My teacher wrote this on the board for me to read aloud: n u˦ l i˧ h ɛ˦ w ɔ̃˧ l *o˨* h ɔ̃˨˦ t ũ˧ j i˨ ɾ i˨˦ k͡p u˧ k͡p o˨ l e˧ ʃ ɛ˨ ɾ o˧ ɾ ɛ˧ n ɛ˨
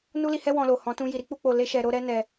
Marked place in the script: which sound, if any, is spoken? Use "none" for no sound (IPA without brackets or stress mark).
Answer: o˨